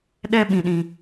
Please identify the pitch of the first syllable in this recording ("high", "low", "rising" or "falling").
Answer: high